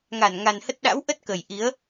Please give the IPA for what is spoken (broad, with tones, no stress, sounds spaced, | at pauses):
ŋ a˧˩ n ŋ a˨˩ n h ə˦˥ t̚ ɗ a̰˧˥ w ʔ ə˦˥ t̚ k ə˨˩ j ʔ i˨˦ ə̯